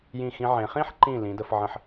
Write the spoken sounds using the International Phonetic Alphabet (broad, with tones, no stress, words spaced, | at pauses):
jĩ˧˩xĩ˧ʕẽ˩˧ χĩ˥ħǃĩ˧˩ lĩ˩˧də˩˧fʕə̃˧ħ